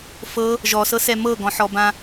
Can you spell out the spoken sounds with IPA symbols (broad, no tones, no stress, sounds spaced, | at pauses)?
f ɤ | ʒ ɔ s ɤ s ɛ m ɤ ɡ ɔ̃ ħ ɔ b ã